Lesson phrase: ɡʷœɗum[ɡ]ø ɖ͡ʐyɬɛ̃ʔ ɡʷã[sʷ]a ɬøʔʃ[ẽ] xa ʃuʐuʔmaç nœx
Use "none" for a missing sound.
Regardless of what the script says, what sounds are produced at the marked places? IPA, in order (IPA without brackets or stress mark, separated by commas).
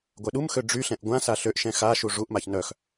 x, s, ɛ̃